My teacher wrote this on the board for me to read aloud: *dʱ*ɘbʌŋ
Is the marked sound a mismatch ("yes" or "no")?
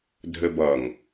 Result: no